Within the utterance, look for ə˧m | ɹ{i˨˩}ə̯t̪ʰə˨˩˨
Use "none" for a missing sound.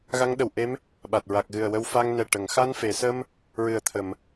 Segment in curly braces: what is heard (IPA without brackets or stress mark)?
ɨ˨˩